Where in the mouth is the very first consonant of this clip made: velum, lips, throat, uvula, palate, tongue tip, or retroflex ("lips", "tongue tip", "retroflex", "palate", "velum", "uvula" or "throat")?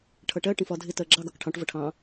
retroflex